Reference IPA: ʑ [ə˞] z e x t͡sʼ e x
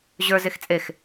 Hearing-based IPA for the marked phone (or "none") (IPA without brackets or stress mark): ə˞